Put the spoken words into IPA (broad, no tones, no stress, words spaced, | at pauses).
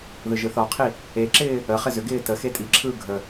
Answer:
ðɯʒɯθɒqʰi | eǁɪː | əχɪ zʏɡɪː təxe tʼiǁʰɯː ɡʱə